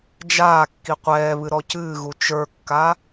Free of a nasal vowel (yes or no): yes